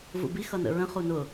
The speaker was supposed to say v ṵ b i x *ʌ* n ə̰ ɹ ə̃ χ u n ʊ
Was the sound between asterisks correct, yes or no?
yes